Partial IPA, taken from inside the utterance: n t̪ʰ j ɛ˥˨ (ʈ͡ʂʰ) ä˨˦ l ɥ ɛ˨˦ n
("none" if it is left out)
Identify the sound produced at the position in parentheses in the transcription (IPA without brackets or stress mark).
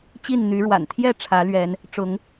ʈ͡ʂʰ